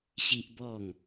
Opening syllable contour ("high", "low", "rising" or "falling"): high